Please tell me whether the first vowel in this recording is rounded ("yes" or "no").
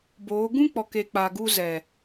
yes